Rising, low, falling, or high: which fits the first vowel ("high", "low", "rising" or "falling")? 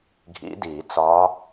rising